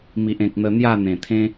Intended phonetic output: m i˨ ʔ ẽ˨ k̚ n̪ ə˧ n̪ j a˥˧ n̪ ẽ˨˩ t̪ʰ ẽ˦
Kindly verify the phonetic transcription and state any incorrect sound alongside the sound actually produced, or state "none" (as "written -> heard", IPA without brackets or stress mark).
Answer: none